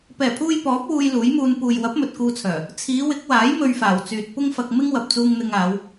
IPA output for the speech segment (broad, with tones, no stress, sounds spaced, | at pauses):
p ɛː˨˩ pʰ uː˧ j p ɔː˨˥ p̚ w uː˧ j l uː˨˥ j m uː˧ n p uː˨ j w ɐ˨˥ p̚ m ɵ˨ t̚ k uː˧ t͡sʰ œː˨˩ | t͡sʰ iː˨˧ w ɪ˨˥ k̚ w aː˨˥ j m ɵ˧ ɥ f aː˨˩ w t͡s yː˨ t̚ p ʊ˥ ŋ f ɐ˧ k̚ m ɪ˥ ŋ w ɐ˨ p̚ t͡s uː˧ ŋ n̪ ɪ˧ ŋ aː˨˧ w